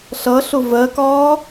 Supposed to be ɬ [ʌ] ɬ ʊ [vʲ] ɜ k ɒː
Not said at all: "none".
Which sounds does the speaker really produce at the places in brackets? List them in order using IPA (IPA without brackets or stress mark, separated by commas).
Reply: ʌ, v